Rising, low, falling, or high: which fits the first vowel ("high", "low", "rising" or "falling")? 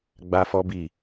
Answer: high